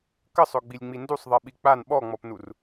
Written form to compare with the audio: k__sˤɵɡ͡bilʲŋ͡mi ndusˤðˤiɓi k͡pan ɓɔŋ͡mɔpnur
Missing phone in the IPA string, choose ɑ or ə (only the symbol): ə